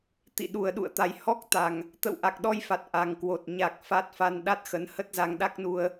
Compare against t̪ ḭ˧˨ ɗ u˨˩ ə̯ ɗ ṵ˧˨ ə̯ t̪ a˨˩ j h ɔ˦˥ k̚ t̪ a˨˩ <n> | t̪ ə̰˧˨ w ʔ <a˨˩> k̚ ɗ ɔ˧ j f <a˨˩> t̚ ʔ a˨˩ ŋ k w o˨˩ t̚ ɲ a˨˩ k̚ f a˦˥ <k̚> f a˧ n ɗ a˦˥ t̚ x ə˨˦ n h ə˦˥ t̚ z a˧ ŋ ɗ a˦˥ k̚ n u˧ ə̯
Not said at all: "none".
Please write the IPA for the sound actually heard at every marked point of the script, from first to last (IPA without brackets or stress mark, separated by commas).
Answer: ŋ, a˨˩, a˨˩, t̚